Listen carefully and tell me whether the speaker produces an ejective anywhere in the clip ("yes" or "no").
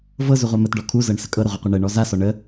yes